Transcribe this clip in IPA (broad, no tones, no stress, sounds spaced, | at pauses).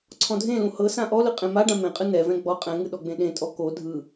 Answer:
ǀʰ ɔ̃ dʱ ẽ l ũ h ɤ s ã ʔ ɔ l ɯ qʼ ẽ m a ɖ ã m ẽ qʼ ɯ n ɛ v ɛ̃ ɡ͡b ɔ qʼ ɛ̃ ŋ ɯ ɗ ɔ ɡ͡b ẽ ɗ ẽ tʼ ɔ k o dʱ ɯ